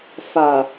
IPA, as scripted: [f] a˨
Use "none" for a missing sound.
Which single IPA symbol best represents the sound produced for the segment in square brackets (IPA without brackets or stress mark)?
f